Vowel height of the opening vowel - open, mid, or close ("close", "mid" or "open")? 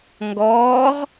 mid